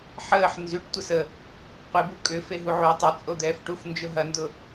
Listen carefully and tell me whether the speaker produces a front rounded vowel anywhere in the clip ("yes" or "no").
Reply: yes